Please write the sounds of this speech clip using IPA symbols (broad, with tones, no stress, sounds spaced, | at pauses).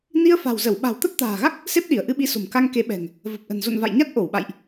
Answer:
n i˧ ə̯ f a̤˨˩ w z ə˧˩ w ɓ a̤˨˩ w t̪ ə˦˥ p̚ t̪ a̤ː˨˩ ɣ a˦˥ k̚ | s e˦˥ p̚ ɗ i˧˩ ə̯ ʔ ɨ˧ ɓ i˨˦ s o̤˨˩ m k a˧ ŋ k e˨˦ ɓ ɛ̤˨˩ ŋ | v ə˨˩ p̚ ʔ ə̤˨˩ n z o̰˧˨ n v a̰˧˨ j ɲ a˦˥ t̚ ʔ o˧˩ w ɓ a̰˧˨ j ʔ